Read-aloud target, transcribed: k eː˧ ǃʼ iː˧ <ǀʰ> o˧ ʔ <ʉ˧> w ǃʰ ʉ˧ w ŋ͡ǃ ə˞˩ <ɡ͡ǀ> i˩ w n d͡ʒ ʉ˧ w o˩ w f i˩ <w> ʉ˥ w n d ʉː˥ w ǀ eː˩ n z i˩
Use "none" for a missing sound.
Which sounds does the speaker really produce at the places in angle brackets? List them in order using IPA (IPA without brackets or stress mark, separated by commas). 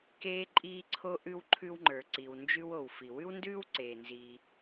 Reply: ǀʰ, ʉ˧, ǀ, w